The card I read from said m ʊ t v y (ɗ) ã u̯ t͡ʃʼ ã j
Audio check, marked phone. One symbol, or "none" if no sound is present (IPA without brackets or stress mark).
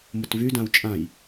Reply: d